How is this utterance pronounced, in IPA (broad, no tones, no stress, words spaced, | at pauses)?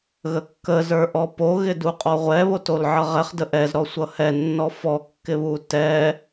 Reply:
ɣəkːə zə˞ʔɔpo ɣɪduqʼɔʁʷɛ βotolʕʌʁɛχ dəʔɛz ɾɔsʷʌhɛ nːɔfɔ kːɪβutɛ